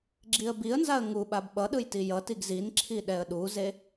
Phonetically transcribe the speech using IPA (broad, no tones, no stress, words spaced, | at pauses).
ɡ͡ǁiə̯biə̯nzaə̯ ŋuɓab ɓʌɗɯj tijʌtiɡ zinǁʰi ɗɛə̯ɗuze